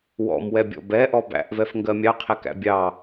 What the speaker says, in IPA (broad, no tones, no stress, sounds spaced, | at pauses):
w ɔ̰ m w ɛ bʲ ɔ̰ b ɛ ʔ ɔ b æ̰ ʔ v ɛ f ŋ ɡ ɜ mʲ ɑ qʰ æ k æ̰ bʲ ɑ